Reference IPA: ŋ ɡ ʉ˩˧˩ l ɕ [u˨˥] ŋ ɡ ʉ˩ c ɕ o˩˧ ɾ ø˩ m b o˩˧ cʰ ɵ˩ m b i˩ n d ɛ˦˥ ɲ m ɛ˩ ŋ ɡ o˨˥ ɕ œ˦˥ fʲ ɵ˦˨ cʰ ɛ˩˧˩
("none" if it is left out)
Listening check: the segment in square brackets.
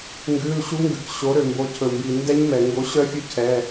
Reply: u˨˥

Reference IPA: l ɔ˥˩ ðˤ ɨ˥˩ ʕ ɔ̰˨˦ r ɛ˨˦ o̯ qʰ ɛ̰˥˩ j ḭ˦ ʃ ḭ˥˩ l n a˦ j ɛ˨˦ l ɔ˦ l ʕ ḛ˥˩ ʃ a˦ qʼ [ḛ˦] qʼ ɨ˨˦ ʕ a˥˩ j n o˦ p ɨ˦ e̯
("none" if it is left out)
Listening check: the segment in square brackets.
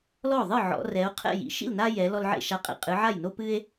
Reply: ḛ˦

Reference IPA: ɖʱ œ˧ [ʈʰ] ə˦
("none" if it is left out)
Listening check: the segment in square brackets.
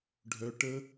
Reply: ʈ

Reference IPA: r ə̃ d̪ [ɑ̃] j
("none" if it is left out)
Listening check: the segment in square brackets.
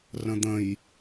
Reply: ə̃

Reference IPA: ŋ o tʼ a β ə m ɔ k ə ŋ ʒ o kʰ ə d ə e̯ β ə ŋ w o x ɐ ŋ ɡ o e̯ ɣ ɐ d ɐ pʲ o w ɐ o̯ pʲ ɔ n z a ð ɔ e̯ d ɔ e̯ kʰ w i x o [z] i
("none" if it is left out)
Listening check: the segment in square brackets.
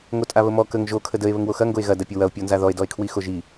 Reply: ʒ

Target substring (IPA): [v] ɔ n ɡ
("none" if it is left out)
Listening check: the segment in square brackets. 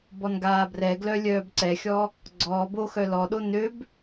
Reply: b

